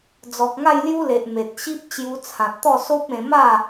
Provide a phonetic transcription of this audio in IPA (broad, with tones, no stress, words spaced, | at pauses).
d͡zɔ˨k̚ŋa˥˧jlju˦ le˨ʔme˨t̚ɕi˦p̚ t͡ɕju˧t͡sʰã˨t̚t̪ɔ˥˧ so˦p̚ẽ˧ma˥˧